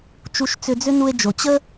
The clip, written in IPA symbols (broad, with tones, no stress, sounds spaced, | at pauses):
t͡ʃ u˧ ʃ t͡s ʏ˧ d͡z ʏ˥ n u˧ e̯ d͡ʒ o˩ t͡ɕ ə˥